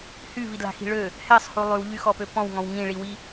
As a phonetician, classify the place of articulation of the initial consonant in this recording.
glottal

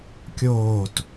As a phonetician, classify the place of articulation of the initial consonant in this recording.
velar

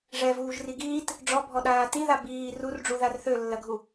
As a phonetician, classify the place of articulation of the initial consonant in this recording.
retroflex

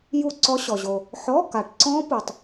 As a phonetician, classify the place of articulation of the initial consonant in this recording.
palatal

